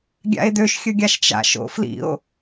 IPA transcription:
ɡʲa̰e̯døʃ xʲɵɡʲaʃt͡ʃa̰ʃ o̰flḭo̯

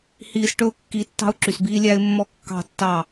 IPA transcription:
hiː˦s ʈɵ˦ʊ̯kːi˨˦ tːɑ̤˦ʊ̯ǁy˨sbiː˦ lʲæ˦ɪ̯mːɔ˦ kːɑ̤˦˨tːɑ˦˨

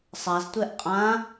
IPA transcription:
sˤaztʷɛʔ qʼã

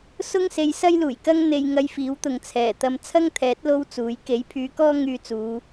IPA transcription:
sʊ˥ŋse˨˧jsɐ˥j luː˨˩jkɐ˥ŋ n̪e˧jŋɐ˧jfiː˨˥wt̪ʊ˨ŋ t͡sʰɛː˨˩ t̪ɐ˧m t͡sʰɐ˥ŋt̪ʰɛː˨˥t̚ lo˥wt͡suː˨˥j ke˨˥jpʰyː˨˧kɔː˥ ŋyː˧t͡suː˨˧

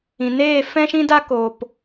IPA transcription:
ĩ˨neː˦˨ fɛ̃˦ʃĩ˦da˦ ko˨p

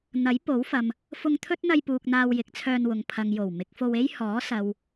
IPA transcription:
n̪ɐ˨˥jpo˨˥wfɐ˨m | fʊ˧ŋt̪ʰɵ˥t̚n̪ɐ˧jpuː˨k̚ n̪aː˧wjɪ˨˥k̚t͡sʰœː˧nwʊ˨˧ŋ pʰɐ˨ŋ jo˨˩w mɪ˨˥k̚fo˧we˥j hɔː˨˥sɐ˨w

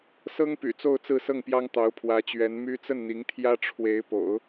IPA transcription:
sɤ˥ŋpy̰˨˩ t͡so˥˧ʊ̯t͡sɹ̩˥˧sɤ˥˩ŋpjɑ˥ŋ t̪ɑ˧˥ʊ̯pʰwä˧˥t͡ɕɥɛ˧˥n my˥ t͡sə˥˩nn̪i˧˥ŋt̪ʰjä˥ ʈ͡ʂʰwe˧˥ɪ̯po̰˨˩˦ʊ̯

